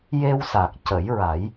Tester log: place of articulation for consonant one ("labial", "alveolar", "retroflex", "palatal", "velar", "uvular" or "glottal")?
palatal